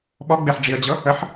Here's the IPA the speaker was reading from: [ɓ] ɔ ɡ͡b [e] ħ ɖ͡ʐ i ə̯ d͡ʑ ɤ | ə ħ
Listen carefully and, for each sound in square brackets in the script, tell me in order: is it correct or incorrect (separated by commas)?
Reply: correct, correct